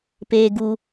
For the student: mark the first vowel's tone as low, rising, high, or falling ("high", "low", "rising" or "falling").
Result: low